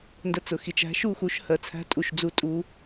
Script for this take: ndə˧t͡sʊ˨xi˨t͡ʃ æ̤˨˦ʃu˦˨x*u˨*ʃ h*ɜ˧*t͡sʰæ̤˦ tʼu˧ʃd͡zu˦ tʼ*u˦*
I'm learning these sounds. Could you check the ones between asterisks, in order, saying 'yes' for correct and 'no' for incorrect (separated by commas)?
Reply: no, yes, yes